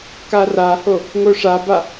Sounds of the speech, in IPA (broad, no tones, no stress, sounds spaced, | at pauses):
k a r a h o | ŋ o ʂ a b a